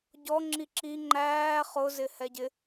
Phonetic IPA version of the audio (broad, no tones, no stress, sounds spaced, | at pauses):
ɟ ɔ ŋ͡ǁ i ǁ i ŋ͡ǃ æː χ ʊ z ɪ h ɛ ɟ ɪ